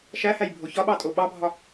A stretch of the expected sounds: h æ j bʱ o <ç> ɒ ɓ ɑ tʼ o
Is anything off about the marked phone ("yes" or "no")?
no